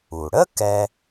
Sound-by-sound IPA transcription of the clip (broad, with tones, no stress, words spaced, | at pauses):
u˩ɽə˥ kɛ˥